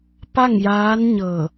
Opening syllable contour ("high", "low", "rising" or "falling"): falling